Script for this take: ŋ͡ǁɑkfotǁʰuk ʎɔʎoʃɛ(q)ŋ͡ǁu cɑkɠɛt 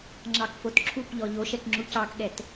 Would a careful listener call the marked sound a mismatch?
yes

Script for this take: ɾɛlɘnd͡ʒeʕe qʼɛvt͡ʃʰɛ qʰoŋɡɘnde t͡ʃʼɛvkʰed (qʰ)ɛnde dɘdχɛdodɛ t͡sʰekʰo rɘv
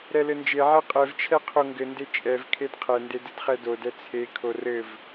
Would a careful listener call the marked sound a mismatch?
no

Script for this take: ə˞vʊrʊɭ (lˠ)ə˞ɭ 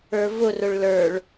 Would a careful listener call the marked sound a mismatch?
yes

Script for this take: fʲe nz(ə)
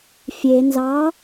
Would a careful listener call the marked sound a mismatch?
yes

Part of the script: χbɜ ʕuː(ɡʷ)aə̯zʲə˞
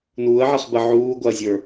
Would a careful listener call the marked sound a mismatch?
no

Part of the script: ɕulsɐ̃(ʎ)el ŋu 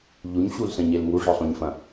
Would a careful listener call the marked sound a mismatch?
yes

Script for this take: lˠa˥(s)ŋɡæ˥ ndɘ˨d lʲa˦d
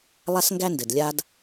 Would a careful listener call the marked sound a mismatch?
no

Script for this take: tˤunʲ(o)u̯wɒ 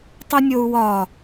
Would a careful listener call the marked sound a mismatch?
no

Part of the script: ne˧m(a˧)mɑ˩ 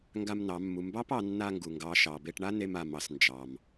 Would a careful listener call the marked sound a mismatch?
yes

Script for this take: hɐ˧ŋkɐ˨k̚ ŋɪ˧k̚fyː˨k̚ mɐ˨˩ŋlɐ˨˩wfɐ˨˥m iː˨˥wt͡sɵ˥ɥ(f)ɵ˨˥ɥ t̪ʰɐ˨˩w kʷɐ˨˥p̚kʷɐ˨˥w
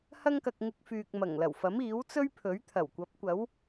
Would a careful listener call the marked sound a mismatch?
yes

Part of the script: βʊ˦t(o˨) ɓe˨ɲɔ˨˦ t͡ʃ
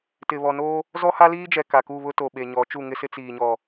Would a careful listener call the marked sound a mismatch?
no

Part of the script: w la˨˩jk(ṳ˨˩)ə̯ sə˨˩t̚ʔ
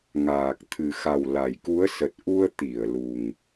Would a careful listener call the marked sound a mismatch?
yes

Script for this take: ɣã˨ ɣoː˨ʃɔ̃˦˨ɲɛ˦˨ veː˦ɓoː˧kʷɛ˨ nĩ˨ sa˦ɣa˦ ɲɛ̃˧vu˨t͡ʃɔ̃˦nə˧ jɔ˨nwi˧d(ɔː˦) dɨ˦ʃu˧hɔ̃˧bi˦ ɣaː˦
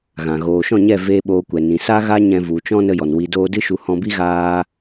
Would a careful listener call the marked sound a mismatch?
yes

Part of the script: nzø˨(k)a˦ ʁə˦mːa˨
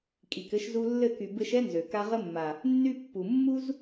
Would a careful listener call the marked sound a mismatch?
no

